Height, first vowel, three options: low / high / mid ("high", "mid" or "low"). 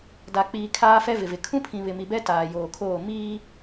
low